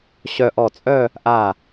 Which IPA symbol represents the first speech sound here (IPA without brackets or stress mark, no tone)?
ɕ